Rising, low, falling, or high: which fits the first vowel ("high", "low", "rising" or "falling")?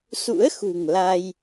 rising